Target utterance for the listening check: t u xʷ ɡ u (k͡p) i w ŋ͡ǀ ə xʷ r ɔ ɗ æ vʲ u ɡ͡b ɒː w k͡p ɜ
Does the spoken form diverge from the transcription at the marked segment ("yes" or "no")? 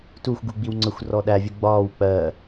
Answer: yes